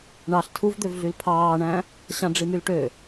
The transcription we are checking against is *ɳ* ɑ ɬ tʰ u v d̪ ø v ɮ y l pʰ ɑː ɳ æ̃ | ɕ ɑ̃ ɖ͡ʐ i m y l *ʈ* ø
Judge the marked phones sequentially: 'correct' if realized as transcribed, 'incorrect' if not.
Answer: correct, correct

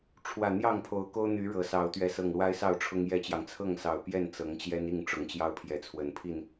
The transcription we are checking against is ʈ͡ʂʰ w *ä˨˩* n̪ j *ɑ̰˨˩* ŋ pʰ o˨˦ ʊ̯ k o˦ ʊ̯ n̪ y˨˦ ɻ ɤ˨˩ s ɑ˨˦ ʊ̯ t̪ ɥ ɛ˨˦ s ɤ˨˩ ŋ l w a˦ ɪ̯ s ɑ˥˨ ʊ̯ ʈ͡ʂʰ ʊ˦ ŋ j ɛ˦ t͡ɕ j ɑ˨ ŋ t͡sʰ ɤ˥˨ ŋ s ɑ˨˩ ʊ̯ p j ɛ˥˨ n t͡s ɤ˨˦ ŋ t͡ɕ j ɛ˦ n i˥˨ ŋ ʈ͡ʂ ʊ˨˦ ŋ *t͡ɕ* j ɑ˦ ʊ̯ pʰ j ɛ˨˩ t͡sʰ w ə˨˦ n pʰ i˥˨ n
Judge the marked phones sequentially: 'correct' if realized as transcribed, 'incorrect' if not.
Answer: correct, incorrect: ɑ˥˨, correct

